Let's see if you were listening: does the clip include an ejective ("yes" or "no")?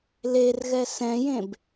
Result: no